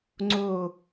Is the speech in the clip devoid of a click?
no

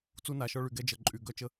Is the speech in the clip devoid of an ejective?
no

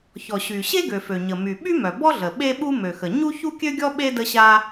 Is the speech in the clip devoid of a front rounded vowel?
no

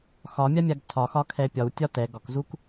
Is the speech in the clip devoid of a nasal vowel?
yes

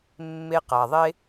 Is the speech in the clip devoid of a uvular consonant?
no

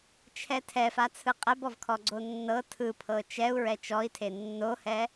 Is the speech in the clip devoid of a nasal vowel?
yes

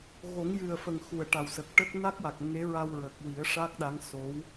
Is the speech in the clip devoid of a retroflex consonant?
no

